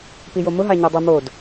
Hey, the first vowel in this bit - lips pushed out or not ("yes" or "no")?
no